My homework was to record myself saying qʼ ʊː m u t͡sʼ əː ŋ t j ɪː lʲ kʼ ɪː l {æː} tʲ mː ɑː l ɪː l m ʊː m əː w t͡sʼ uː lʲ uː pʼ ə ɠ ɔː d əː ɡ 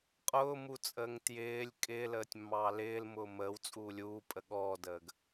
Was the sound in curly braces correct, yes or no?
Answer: no